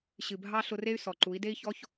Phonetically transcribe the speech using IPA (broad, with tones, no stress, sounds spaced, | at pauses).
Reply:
ɕ ɨ˨ bʱ ɑ˧ ɬ ʊ˧ r e˦ y̯ s ɔ˨ ǃ u˨˦ i̯ d e˦ i̯ ç ɔ˦ ç